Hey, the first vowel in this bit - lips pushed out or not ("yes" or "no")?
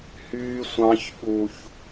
yes